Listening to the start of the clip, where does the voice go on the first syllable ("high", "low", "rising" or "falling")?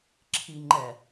low